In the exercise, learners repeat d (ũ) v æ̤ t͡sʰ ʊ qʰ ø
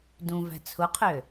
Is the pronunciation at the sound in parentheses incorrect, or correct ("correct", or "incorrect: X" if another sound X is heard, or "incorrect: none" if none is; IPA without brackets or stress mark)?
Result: correct